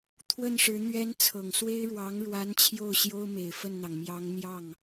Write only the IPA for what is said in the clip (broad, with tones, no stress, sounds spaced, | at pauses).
t̪ʰ w ə˥˩ n ʂ ɻ̩˧˥ n̪ ɥ ɛ˧˥ n t͡sʰ ɤ˨˩ ŋ s w e˥ ɪ̯ ɻ w ɑ˧˥ ŋ ɻ w a˧˥ n t͡ɕʰ j o˥˩ ʊ̯ ɕ j o˥ ʊ̯ m e˨˩ ɪ̯ f ə˥˩ n n̪ ɑ˩ ŋ m j ɑ˧˥ ŋ n̪ j ɑ˥˩ ŋ